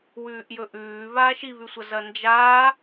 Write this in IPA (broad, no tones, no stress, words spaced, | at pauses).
wʉːʔjɵʔʉː βaːʃiβʉsʷɐ zɐnd͡ʒaː